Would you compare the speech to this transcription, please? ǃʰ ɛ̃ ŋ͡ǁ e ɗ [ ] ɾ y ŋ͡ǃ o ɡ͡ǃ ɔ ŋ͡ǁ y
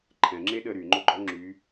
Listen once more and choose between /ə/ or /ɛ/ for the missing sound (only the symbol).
ə